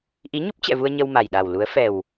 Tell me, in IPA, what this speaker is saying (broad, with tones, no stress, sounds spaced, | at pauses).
ʔ i˨˦ ɲ u˦˥ p̚ t͡ɕ ɛ̰˧˨ v u˧ ə̯ ɲ ə˧ w m a˨˩ j ɗ a˨˩ w l u˨˦ ə̯ f ɛ˨˩ w